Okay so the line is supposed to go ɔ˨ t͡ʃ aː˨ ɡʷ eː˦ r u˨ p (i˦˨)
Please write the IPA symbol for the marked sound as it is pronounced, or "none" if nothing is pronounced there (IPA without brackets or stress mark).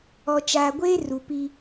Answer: i˦